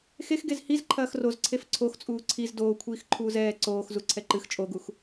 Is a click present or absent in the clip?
present